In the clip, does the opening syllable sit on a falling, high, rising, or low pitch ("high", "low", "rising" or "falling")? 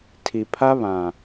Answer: low